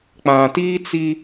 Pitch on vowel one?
low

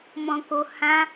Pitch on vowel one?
low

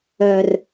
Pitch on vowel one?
low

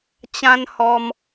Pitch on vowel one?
high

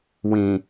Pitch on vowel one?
low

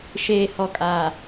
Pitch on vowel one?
low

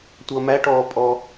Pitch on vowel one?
low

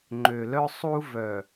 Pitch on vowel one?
low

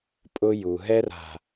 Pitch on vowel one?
high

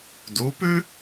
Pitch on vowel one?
rising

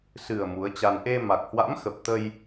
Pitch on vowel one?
low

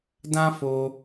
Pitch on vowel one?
high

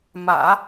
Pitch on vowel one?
low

